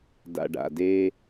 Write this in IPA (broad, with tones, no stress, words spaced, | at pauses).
da̰˨ɖa̰˨de˦